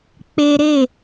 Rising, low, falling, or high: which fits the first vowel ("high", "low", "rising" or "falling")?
high